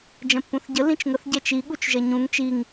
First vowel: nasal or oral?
nasal